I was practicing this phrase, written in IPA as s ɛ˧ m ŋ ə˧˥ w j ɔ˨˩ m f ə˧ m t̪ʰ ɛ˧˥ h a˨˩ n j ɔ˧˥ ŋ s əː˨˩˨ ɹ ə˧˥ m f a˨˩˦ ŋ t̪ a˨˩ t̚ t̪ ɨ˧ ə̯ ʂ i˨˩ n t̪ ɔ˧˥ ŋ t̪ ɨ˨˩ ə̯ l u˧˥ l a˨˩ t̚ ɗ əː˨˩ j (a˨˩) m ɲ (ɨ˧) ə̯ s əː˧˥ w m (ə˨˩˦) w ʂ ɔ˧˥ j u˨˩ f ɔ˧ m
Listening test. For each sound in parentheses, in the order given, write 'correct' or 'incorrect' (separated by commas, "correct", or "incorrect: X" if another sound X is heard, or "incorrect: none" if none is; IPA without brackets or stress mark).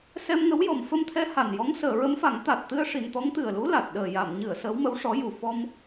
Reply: incorrect: a˨˩˨, incorrect: ɨ˨˩˨, incorrect: ə˧˥